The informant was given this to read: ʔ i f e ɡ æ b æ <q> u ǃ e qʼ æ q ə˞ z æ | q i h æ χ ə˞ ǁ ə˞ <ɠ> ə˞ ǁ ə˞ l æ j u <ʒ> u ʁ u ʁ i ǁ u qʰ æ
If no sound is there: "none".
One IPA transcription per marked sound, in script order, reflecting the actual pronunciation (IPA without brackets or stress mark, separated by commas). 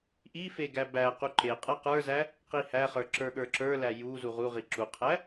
q, ɠ, z